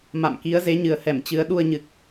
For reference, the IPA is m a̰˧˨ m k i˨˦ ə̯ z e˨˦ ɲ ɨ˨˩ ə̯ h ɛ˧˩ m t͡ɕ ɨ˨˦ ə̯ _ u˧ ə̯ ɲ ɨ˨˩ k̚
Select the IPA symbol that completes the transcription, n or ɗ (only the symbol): ɗ